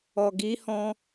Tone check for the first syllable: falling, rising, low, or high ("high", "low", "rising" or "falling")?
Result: low